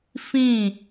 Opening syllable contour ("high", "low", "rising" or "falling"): falling